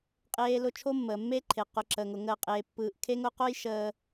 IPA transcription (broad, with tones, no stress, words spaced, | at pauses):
qʼeː˨lʊ˨ t͡ʃʰo˦mːəː˨mːe˦ǃʰe˨ qʊ˨ǁəː˨ŋʊ˨ ŋəː˦qʼeː˦pːɯː˦ʔ kʰe˦ŋʊ˦qo˦j ʃəː˦